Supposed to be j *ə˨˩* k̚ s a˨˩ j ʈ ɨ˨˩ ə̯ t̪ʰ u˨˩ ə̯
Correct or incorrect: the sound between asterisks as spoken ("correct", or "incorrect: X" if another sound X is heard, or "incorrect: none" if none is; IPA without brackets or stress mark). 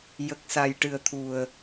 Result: correct